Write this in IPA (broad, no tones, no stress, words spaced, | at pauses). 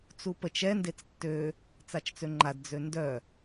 t͡supət͡ʃ ɛ ndet͡stːø | t͡sat͡ʃt͡søŋ͡ǃad d͡zøndœ